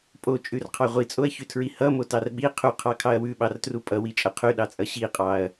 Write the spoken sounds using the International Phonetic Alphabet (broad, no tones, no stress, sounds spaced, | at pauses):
pʼ o t͡ʃʼ ʉ r qʰ ɑ ʁʷ i t͡sʼ o ɐ̯ ç ʉ tʰ ɹ i h ʌ m o t ɑ r ɓ i qʰ u qʰ ɑ kʰ ɑ ɐ̯ w ʉ ɓ ɑ r t r u pʼ ʌ w i t͡ʃʼ ʌ qʰ ʉ ɗ ɑ t͡sʼ ʌ ɕ i qʼ ɑ ɐ̯